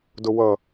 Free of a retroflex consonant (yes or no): yes